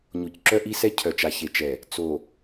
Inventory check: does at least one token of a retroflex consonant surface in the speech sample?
no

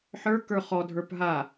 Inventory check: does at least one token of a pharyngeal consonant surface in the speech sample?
yes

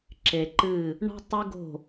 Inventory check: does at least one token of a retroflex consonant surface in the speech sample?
yes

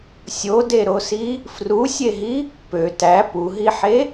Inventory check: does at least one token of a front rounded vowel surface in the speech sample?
yes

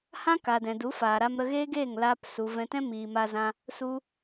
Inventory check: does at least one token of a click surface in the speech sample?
no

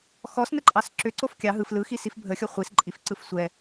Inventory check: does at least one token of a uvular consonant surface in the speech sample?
yes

